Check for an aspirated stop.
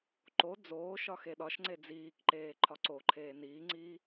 present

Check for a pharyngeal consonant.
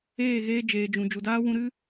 absent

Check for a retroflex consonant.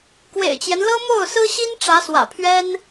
present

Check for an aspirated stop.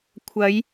present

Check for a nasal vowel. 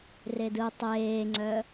absent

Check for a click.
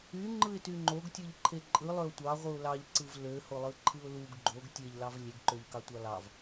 present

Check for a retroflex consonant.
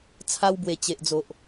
absent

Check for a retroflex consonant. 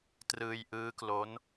absent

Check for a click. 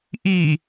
absent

